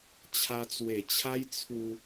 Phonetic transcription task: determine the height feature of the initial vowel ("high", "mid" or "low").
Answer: low